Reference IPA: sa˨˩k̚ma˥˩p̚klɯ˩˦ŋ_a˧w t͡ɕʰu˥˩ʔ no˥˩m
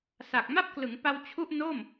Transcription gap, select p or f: p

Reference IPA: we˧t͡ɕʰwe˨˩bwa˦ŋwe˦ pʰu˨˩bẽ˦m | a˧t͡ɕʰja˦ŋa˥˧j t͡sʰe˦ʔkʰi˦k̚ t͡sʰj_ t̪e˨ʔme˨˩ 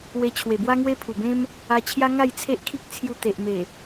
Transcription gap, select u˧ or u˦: u˧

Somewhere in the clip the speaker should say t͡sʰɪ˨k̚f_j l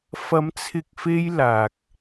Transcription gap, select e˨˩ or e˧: e˧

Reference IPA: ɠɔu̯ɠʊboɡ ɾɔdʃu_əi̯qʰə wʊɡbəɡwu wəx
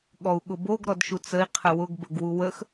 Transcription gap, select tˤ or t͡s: t͡s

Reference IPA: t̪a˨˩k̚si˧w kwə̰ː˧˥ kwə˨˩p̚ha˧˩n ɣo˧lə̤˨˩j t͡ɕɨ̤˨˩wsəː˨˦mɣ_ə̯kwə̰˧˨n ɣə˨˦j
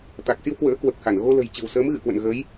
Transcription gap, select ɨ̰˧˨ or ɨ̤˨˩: ɨ̰˧˨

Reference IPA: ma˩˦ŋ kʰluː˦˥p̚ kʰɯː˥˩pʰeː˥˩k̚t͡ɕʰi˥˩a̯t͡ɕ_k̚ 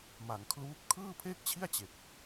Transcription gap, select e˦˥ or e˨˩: e˨˩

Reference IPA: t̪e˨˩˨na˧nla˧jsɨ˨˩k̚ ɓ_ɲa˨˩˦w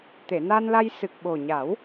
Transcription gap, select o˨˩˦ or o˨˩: o˨˩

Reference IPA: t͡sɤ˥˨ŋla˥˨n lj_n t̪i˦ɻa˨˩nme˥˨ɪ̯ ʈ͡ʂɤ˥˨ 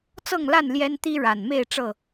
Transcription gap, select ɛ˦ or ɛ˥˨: ɛ˦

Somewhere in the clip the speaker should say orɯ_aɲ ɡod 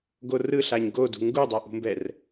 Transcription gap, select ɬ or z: ɬ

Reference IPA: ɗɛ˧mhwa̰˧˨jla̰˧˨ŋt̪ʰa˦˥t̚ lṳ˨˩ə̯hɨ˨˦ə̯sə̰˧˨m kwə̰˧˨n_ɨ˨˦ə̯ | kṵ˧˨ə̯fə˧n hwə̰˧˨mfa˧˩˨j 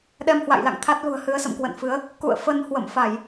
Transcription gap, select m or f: f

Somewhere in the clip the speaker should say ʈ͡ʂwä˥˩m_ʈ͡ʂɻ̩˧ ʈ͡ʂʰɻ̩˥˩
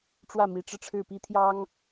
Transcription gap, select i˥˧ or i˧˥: i˧˥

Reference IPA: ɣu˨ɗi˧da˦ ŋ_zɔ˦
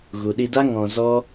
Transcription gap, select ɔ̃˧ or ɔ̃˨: ɔ̃˧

